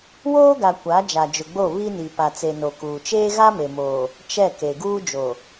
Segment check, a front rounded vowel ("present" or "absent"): absent